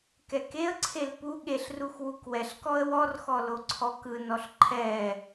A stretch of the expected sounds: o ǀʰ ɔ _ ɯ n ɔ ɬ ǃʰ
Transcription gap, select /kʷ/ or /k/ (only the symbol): k